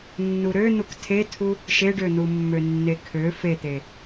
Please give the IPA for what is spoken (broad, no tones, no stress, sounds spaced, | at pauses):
nː u ɾ ø n̪ u k tʰ e tʰ u | ʃ e ɖ ø n̪ u mː ø nː e kʰ ø f e t̪ e